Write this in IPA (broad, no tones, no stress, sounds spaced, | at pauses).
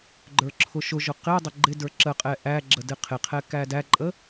ɡ͡ǃ ə˞ ǁʰ ʊ ʃ ʊ ʒ ʊ q ɪ dˤ ə ɡ͡ǃ ɪ d ə˞ ǁ ə qʼ ɛ ʔ æ ɡ͡ǁ ə d ɪ qʰ ɪ qʰ ɛ k æ d æ ǃʼ ə